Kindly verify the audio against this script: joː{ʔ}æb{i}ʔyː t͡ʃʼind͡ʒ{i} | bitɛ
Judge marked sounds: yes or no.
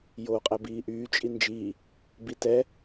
no, no, no

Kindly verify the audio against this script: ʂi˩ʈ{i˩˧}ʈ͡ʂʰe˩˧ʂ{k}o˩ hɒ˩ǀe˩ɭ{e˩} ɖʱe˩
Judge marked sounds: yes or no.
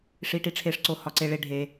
no, no, yes

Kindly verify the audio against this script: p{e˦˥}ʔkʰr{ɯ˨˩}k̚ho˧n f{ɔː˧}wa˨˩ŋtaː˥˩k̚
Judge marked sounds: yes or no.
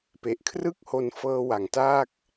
no, no, no

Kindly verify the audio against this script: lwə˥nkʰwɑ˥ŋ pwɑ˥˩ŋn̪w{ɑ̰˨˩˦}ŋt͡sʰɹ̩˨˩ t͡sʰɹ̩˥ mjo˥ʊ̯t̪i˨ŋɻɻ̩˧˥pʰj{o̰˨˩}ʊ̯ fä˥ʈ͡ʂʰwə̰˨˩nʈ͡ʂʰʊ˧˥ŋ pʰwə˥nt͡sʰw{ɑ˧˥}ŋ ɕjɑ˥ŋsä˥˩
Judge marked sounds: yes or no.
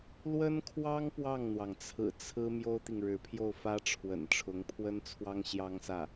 no, no, no

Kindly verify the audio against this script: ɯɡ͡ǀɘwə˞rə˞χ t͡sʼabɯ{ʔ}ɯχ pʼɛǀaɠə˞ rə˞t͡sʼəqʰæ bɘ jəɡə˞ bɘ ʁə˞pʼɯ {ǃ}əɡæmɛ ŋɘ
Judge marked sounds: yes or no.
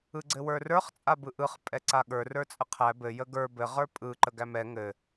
yes, yes

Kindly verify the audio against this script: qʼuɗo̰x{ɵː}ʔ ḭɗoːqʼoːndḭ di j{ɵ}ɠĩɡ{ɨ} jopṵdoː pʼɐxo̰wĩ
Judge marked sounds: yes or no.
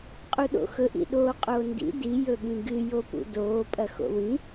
no, yes, yes

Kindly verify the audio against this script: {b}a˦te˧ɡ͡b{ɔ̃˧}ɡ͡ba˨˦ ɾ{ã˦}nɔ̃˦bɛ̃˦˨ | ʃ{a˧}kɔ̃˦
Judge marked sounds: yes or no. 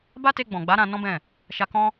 yes, no, no, yes

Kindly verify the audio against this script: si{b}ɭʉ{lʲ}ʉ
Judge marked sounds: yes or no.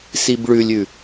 yes, yes

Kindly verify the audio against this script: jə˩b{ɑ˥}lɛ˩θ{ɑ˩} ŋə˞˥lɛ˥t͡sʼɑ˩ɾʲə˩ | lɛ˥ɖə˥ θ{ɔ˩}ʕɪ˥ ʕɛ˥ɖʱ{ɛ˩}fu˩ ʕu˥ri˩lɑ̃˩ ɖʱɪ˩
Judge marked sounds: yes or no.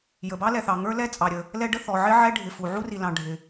yes, yes, yes, no

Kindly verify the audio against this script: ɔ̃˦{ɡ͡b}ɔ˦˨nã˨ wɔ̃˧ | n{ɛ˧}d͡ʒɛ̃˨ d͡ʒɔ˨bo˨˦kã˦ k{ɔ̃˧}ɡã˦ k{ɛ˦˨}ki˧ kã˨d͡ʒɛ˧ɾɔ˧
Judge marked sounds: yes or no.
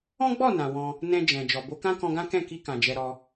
yes, no, yes, no

